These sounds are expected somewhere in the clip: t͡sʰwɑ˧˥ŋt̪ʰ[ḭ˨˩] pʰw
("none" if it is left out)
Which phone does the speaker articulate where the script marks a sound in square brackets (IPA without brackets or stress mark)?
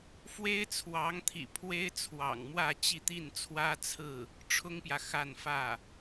ḭ˨˩